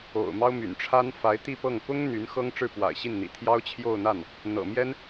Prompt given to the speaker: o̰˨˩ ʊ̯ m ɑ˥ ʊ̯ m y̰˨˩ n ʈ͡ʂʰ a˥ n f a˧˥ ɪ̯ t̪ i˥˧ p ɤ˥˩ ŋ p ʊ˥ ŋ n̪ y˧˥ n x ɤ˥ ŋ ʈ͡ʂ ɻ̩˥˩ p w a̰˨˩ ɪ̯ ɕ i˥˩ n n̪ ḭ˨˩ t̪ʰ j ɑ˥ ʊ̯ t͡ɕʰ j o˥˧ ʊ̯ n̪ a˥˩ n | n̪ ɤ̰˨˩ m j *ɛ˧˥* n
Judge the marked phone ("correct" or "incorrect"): incorrect